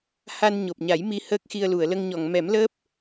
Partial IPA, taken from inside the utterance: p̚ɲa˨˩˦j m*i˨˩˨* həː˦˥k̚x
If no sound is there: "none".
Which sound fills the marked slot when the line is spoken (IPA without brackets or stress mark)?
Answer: i˧